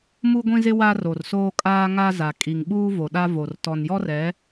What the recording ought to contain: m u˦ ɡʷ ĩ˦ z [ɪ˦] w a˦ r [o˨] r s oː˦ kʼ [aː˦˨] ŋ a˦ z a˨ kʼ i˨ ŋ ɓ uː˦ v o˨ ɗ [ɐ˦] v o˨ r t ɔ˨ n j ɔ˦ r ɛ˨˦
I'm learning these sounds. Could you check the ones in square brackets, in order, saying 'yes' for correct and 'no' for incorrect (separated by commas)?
yes, yes, no, no